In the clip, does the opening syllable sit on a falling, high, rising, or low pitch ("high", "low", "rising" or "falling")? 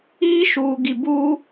high